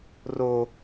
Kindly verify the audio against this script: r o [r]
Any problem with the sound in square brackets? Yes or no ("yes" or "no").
yes